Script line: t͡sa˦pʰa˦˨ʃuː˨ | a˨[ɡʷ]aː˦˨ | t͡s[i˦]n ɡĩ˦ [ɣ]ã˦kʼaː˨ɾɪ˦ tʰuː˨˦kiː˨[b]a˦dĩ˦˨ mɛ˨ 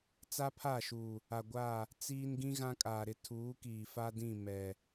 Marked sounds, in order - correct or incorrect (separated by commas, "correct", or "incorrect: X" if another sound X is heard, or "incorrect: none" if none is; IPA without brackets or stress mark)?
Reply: correct, incorrect: iː˦, correct, incorrect: f